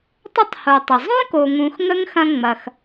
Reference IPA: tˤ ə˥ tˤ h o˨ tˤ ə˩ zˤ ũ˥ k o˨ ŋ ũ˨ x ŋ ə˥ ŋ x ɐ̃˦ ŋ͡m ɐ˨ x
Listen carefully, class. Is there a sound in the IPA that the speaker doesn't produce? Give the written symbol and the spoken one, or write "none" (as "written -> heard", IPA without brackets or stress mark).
none